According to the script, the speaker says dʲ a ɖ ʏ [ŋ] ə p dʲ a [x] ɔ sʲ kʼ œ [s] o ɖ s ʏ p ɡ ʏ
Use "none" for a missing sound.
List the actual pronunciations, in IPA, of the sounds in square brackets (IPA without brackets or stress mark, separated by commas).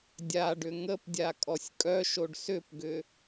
ŋ, kʼ, ʃ